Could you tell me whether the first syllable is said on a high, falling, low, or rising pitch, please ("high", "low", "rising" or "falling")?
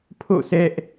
falling